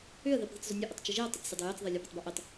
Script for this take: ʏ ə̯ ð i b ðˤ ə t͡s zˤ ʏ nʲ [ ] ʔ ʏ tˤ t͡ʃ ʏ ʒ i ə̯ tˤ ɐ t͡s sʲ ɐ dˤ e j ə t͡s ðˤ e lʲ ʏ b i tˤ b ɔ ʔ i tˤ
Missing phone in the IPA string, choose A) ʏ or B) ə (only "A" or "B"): B